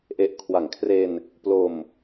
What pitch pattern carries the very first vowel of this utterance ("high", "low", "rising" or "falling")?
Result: low